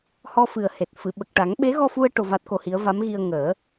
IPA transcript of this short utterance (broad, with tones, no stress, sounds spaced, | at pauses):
h ɔ˧ f ɨ˨˩ ə̯ h e˨˩ t̚ f ɨ˨˩˨ ɓ ə˨˩ k̚ ʈ a˨˩˦ ŋ ɓ e˧˥ ɣ ɔ˧ f u˧ ə̯ ʈ o˧ v a˦˥ t̚ k o˧ h i˧˥ ə̯ v a˧˥ m ɣ i˧ ə̯ ŋ əː˨˩˦